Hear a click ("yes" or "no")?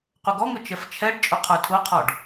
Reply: no